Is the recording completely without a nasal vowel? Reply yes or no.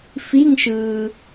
yes